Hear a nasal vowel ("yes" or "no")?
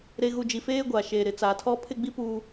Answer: no